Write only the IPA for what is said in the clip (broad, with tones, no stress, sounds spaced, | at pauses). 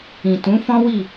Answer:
ĩ˨ t ũ˨˦ f ɔ̃˦ w i˦˨